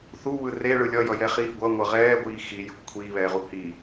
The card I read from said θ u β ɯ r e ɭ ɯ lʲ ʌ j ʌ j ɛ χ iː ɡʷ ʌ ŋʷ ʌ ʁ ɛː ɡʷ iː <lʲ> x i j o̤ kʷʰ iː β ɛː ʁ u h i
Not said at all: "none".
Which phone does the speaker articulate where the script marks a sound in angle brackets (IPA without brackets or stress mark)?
none